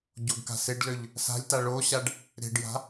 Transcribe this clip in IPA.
ɟ o ɡ k a̤ s ɪ ɖ l ø ʎ | s a̤ lʲ t a ɭ o ɕ a ɖ | ɾ e̤ ɖ j a̤

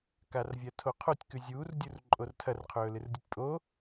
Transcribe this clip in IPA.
k a r vʲ ɐ tʰ o qʰ o tʲ k ʉ zʲ uː r dʲ u r ǃʼ o r tʰ ɐ r qʰ ɵː l ɨ r dʲ u tʲ pʼ o

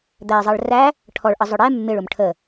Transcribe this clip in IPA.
d̪ æ ɪ̯ zˤ ɜ ɭ r æ | ʈʰ ɔ ɭ ʔ ə zˤ ʊ ɽ ɛ mː ɪ ɭ ʊ m ʈʰ ə

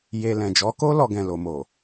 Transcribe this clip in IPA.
j e˧ l ɛ̃˨ d͡ʒ ɔ˨˦ k o˦ l ɔ˧ ɡ ɛ̃˨ l o˨ m o˨

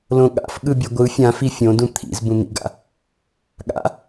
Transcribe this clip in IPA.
l õ ɠ a̰ f ɠ ɯ bʲ ʌ ɡʷ ɯ fʲ ã f i fʲ õ d ũ t̪ʰ ḭ z b ũ n̪ ḭ ɡ a̰ | ɠ a̰

